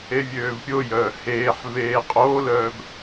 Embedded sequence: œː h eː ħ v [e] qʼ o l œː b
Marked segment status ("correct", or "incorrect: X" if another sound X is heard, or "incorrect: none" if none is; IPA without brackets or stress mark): incorrect: eː